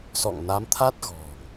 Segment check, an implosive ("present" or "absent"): absent